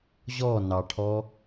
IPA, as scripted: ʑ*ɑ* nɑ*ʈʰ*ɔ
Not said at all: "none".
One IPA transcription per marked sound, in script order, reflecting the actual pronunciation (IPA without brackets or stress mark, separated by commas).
ɔ, ʈʰ